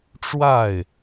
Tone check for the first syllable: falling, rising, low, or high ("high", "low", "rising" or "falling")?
falling